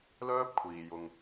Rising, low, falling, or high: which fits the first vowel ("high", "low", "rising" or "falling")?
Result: high